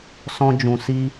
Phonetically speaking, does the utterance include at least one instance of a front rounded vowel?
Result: no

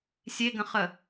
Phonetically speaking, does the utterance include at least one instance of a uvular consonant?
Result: yes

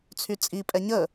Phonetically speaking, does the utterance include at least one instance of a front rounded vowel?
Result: yes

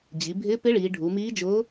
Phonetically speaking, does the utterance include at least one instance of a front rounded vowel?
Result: no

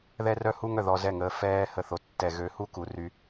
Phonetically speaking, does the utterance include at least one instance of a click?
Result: no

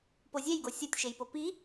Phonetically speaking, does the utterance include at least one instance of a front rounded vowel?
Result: no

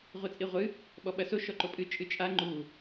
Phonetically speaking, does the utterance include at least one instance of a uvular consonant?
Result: yes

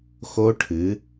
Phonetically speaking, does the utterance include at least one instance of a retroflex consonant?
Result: yes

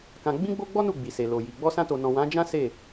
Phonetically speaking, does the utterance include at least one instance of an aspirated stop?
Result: no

